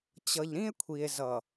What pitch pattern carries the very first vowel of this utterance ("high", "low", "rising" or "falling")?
low